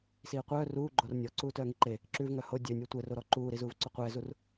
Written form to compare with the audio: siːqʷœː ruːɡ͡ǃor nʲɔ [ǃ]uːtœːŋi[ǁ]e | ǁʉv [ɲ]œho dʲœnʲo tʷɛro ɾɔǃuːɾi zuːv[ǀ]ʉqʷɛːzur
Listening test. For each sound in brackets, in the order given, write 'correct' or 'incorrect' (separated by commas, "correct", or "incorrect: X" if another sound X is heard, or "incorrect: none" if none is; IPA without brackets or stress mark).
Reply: incorrect: ǀ, incorrect: ǃ, incorrect: ŋ, correct